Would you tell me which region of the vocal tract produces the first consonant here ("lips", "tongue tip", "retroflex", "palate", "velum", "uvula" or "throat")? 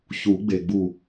palate